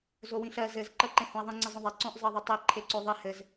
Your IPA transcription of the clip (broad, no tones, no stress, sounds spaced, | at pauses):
z o w ĩ ɬ ɜ z ɘ z ǃ ɜ ǃ ẽ h õ ɐ̯ ðˤ ĩ ŋ͡ǀ ɪ zˤ õ ðˤ e ǀ õ ʔ zˤ ɜ ðˤ ɘ tˤ e ǃʰ e ǀ o ðˤ i h ɘ z